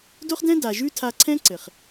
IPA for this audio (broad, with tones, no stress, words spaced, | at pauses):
do˦χdɛ̃˦ da˨ʒʉ˦tʰa˧ ǀʰɛ̃˦ ǀɘ˨χ